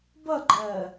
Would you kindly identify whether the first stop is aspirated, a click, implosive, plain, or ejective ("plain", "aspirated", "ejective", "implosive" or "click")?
plain